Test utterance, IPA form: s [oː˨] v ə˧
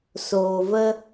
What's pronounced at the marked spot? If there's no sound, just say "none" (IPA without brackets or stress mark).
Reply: oː˨